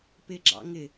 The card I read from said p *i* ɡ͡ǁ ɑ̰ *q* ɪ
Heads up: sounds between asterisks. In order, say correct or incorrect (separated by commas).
incorrect, incorrect